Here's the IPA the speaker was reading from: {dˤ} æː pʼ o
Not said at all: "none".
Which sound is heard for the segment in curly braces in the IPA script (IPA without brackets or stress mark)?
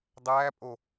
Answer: dˤ